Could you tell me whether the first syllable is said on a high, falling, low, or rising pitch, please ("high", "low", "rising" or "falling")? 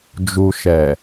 low